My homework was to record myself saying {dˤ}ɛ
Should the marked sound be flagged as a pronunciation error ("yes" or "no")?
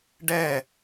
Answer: yes